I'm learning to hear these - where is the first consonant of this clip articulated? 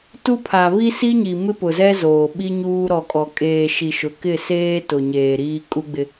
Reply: tongue tip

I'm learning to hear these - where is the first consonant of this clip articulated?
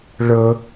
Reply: retroflex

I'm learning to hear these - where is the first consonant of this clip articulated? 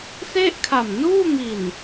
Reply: tongue tip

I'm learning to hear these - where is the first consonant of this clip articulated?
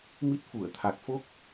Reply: lips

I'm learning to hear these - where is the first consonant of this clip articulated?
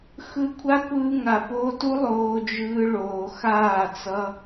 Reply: velum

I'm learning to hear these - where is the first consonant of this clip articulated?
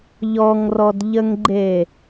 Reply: palate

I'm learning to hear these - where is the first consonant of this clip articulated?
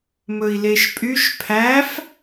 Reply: lips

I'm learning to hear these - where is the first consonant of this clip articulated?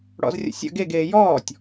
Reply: retroflex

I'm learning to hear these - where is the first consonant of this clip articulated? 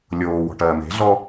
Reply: tongue tip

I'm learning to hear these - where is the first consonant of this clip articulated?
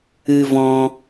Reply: lips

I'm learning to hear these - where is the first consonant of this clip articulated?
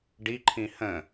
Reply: retroflex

